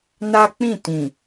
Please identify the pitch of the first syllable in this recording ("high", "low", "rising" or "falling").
high